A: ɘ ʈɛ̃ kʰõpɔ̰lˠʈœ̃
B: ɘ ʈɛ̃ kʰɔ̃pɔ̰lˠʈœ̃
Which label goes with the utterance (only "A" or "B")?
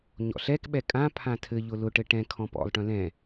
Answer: B